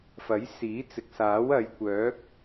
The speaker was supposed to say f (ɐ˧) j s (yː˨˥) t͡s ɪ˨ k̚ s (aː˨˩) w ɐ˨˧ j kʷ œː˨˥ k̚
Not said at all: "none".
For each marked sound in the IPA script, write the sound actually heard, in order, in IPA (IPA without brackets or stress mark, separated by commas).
ɐ˨˥, iː˨˥, aː˨˥